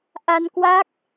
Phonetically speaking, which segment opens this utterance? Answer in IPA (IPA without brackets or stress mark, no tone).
ʔ